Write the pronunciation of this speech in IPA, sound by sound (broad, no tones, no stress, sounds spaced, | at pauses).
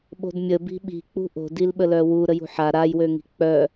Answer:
ɓ o̤ d mʲ ə b i̤ ɓ i̤ k͡p ṳ ʔ o̤ d i l ɓ ə l œ w u ɾ ə j ṳ ħ a ɾ a j w ø ŋ i̤ k͡p œ